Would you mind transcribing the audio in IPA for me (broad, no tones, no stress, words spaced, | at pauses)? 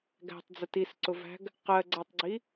ɡæ̤tˤd͡zə tisǀʊvæ̤ɡ | qɜɡ͡ǀætˤɡ͡ǀi